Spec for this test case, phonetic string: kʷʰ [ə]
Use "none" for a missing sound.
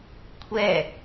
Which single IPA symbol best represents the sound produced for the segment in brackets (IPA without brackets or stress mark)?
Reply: ɛ